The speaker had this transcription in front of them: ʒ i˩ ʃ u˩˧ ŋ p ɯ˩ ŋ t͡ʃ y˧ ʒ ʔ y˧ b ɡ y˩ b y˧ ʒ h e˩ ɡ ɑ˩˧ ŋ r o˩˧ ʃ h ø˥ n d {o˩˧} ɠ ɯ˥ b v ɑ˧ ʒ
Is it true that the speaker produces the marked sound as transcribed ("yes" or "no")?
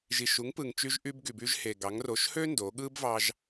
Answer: yes